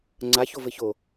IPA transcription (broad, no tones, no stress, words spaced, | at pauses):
ŋ͡ǀaço vɘço